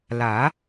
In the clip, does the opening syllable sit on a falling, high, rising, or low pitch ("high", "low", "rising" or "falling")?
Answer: rising